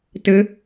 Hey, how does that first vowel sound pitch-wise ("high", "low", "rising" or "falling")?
rising